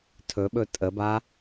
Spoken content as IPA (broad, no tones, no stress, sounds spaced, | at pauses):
tʰ ɵ ɓ ɵ tʼ ə b a